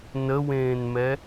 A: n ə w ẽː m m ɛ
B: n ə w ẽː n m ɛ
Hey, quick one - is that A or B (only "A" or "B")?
B